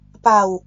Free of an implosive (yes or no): yes